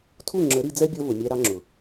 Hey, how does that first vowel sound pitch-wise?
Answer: falling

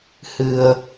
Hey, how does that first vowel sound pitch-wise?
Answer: low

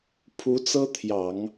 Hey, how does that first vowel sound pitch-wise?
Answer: rising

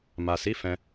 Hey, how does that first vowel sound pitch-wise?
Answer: low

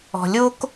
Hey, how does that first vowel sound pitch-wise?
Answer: low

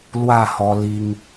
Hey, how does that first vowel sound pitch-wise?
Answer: falling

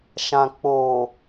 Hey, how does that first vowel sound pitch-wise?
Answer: low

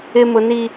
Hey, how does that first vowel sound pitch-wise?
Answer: high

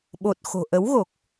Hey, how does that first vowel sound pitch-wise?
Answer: low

